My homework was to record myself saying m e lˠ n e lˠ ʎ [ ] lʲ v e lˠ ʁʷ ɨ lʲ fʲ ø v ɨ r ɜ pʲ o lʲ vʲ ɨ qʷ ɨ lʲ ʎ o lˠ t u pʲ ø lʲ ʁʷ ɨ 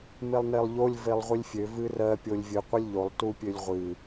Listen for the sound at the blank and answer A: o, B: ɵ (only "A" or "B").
A